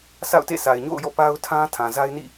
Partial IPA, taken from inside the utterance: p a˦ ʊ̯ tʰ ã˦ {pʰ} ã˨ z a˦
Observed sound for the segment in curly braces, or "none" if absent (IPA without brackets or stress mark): tʰ